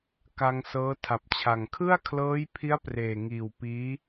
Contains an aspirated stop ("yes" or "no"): yes